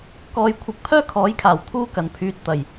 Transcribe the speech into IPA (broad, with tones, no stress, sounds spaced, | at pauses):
k ɔː˧ j kʷʰ ɪ˧ k̚ pʰ œː˥ kʰ ɔː˨˥ j kʰ aː˨˩ w t̪ʰ uː˥ k ɐ˨˩ n pʰ yː˨˥ t̚ t̪ ɐ˨˩ j